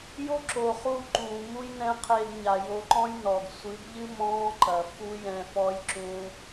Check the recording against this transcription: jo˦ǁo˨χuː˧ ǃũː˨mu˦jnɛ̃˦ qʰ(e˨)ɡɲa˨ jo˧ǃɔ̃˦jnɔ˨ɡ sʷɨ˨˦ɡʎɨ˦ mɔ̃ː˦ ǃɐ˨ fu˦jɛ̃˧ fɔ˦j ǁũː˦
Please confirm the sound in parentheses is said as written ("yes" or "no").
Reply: no